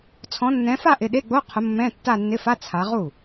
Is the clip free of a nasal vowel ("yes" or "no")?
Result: no